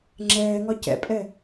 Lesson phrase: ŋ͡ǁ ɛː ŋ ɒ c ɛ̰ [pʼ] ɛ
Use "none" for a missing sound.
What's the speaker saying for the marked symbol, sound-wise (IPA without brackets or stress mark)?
pʼ